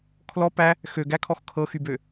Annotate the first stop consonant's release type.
aspirated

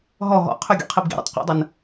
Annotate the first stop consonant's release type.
aspirated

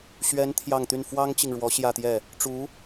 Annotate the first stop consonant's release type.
aspirated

